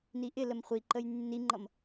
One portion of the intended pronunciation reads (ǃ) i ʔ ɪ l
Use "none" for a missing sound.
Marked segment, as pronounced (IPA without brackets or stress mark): n